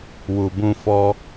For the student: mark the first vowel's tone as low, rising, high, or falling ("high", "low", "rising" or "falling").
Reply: low